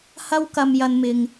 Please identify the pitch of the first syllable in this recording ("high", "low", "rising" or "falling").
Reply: high